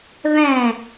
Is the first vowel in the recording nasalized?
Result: yes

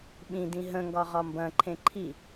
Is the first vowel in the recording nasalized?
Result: yes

